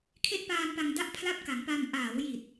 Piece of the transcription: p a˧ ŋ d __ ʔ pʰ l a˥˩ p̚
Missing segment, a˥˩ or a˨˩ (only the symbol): a˥˩